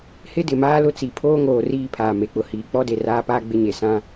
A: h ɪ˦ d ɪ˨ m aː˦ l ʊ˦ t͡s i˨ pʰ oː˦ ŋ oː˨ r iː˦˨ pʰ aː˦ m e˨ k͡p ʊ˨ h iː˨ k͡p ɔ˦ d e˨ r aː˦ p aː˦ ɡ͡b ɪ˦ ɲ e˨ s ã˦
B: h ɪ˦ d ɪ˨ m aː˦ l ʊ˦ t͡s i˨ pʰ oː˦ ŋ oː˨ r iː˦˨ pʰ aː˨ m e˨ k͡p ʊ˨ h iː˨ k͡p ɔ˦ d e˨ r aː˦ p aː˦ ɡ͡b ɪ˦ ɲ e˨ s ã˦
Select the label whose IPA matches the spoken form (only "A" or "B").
B